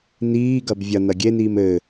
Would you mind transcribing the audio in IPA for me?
niːɡɐb vʲɐ nɐɡʲeniːm ɘ

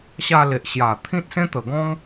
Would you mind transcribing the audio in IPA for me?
ɕa˧le˨ʔɕja˨˩ t̪ʰĩ˦t̚sẽ˦t̪ə˨˩ɡɔ̃˦ŋ

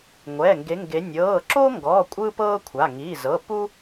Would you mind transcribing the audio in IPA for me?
ŋʷɛ˩˧˩ŋɡe˨˦ŋɡe˨˦ nʲɤː˩˧˩ǁo˥ŋɡɔ˩˧˩ kʷʼɯ˥ pɤː˥kʷʰa˩˧˩ ŋiː˩˧˩zɤ˩˧˩pu˥

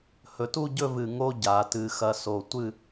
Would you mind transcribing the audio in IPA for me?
hɵ˩˧tu˥˧ɟɵ˥˧ vɨ˧˩ ŋo˥ɟa˩˧tɨ˧ xɐ˧so˧˩tʷɨ˥˧

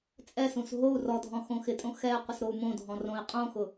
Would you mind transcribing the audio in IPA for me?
t͡sʼɛsũs ɦou̯ rɔdʱɔ̃ xõxɪtʼõ xɛ qʷɪsɾou̯mõdʱɔ̃ rõi̯qʼõxʊ

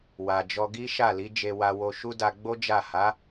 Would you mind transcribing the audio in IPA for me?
wa˨d͡ʒɔ˧ ɡi˦ʃa˦˨ li˨˦d͡ʒe˧ wa˧wo˧ ʃu˦ da˧ ɡ͡bo˦ d͡ʒa˦˨ ha˨˦

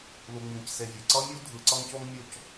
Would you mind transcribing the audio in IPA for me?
lu˨ŋ͡mĩ˨cse˨vʲɛ˩ ǀʌ˥ mʲu˥dʱɯ˨ ǀʌ˦ŋco˥ŋmʲo˦c

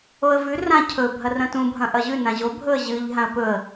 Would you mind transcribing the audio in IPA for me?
oə̯vʉ rã cʰɵ bʱɐrɐ̃tũ bʱɐ̃ʔɐʑʉ nãʑo bʱɵə̯ʑɨʎ ɦãə̯pɵə̯

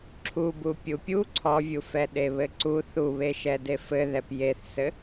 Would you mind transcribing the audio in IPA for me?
ǁʰubu pʲupʲu ǀʰɔvʲufɛ ɗeβɘǀu θuβeʃɛ defɘðɛp jeθsɘ

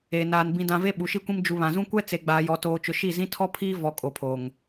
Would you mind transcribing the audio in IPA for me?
e˨naː˨n bĩ˨dã˨ ve˦ɓu˨ʃi˦kʷĩ˦m d͡ʒu˨ βã˨zũ˦kʷɛ˦ t͡se˨ɡ͡baː˨ jɔ˨toː˨t͡ʃʊ˨ ʃi˦˨zĩ˦ tʰɔ˦pʰiː˦ vɔ˨ kʼo˨pʰoː˨ŋ

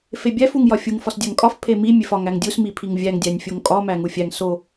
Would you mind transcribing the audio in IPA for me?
febʲæf uŋjɒfʲuŋ fɒsdʲæŋkʼɒf pʰemi mʲefɒ ŋæŋdʲus mipʰiŋvʲæŋ dʲænʲfʲoŋkʼɒ mæŋufʲæŋ so

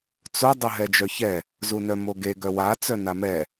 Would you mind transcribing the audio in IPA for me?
t͡so dˤɵɦɛd͡ʒœçɛ | zunœmoɡe ɡœwa t͡sœnamɛ

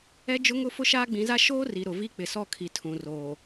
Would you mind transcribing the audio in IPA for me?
ɛ˦d͡ʒʊ˦ŋʊ˦ fʊ˦ʃaː˦ɡ͡bĩ˨˦za˦ ʃoː˦ ri˨ ɾʊ˨vi˦ k͡pɪ˨sɔ˦˨kʰi˨ tʰũ˨roː˨

